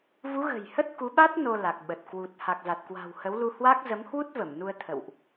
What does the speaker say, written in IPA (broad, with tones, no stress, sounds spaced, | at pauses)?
v u˨˦ ɣ ə̤˨˩ j h ə˦˥ t̚ k u˨˦ ɓ a˦˥ t̚ n o˧ l a˨˩ k̚ ɓ ə˨˩ t̚ k w u˨˩ t̚ h a˨˩ k̚ z a˨˩ t̚ k w a̤˨˩ w h ə˨˦ w l u˧ h w a˦˥ k̚ z ə˨˦ m h w u˦˥ t̚ v ə˧˩ m n u˧ ə̯ t̪ʰ ə̰˧˨ w ʔ